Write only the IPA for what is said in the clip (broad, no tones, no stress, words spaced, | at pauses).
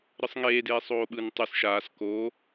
ɾɯsˤŋeːdeː sˤoːɓɯn tˤɯs ʃaːs ko